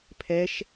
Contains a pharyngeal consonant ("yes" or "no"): no